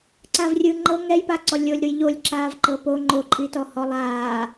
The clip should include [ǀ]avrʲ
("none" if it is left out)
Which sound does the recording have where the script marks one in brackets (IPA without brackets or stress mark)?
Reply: ǀ